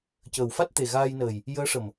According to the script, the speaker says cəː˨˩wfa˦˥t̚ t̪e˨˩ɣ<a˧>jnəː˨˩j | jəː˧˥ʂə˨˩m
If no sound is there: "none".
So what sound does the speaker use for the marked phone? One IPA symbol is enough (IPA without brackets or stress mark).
aː˧